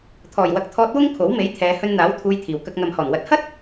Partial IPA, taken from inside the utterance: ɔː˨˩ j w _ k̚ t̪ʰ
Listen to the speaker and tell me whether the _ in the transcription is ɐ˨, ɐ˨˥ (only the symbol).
ɐ˨